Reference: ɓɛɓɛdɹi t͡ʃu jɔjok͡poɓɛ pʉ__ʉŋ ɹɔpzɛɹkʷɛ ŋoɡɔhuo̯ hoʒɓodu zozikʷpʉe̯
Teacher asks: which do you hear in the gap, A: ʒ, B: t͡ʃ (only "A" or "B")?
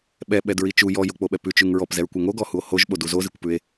B